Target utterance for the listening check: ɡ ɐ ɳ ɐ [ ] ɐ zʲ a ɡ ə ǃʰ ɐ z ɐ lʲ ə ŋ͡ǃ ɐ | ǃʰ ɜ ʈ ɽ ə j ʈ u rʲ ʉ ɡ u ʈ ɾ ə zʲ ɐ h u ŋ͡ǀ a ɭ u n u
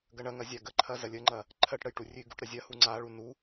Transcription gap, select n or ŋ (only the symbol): ŋ